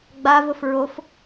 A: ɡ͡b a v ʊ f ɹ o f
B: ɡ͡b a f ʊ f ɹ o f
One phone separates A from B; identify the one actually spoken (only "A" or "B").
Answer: A